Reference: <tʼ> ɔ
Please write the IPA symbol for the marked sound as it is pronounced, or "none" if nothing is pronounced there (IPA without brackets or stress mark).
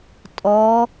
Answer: tʼ